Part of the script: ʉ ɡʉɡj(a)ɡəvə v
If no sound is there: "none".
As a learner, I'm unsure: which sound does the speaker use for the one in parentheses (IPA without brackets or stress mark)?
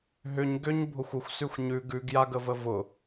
a